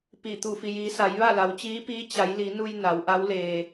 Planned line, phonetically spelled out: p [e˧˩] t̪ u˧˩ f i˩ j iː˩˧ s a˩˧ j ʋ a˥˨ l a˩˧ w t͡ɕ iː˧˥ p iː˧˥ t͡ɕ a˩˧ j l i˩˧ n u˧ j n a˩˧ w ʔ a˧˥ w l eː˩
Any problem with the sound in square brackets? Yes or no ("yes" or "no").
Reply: yes